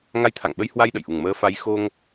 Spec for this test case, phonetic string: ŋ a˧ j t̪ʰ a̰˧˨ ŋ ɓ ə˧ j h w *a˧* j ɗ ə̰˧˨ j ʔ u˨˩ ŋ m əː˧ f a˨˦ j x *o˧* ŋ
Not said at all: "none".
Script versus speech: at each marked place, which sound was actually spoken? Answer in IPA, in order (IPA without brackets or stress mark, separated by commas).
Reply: a˧, o˧